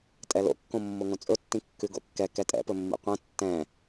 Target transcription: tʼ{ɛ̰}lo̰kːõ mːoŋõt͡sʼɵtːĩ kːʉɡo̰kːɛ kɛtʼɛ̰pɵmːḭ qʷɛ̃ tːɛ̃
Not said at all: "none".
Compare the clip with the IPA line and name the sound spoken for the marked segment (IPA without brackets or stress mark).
ɛ